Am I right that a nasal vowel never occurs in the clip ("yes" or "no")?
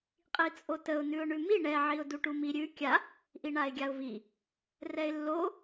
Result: yes